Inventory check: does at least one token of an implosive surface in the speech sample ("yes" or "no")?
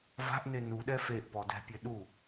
yes